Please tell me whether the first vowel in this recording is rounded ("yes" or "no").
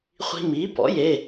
no